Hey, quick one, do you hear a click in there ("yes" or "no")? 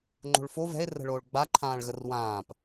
yes